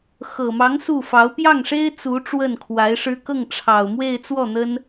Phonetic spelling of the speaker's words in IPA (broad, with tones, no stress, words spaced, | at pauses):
xɤ˨˩mɑ˧˥ŋ su˥˩fɑ˧˥ʊ̯ pjɑ˥˩ŋʂe˥ɪ̯ t͡su˧˥ ʈ͡ʂwə˥˩nkʰwa˧˥ɪ̯ʂɻ̩˥ kɤ˥˩ŋʈ͡ʂʰɑ˨˩ʊ̯ mwe˥˧ɪ̯t͡swɔ˥˩ n̪ə˥n